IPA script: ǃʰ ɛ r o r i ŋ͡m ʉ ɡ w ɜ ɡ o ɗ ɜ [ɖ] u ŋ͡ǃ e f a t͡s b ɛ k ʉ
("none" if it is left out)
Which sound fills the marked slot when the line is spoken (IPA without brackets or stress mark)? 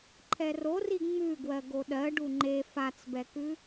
ɖ